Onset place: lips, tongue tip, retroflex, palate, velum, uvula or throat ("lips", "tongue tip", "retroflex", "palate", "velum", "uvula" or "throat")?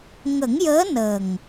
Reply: velum